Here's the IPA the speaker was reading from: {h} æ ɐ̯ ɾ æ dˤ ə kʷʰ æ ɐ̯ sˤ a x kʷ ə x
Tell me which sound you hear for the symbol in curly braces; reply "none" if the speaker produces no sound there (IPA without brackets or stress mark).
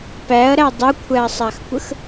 p